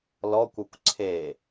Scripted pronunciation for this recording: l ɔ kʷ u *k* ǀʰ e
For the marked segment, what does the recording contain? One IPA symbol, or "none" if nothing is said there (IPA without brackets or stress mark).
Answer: kʷ